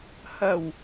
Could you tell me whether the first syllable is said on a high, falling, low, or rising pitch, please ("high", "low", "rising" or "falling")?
low